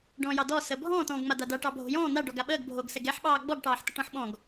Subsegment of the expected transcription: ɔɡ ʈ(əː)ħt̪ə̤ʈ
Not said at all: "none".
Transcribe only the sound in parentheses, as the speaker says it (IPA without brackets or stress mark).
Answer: ɑː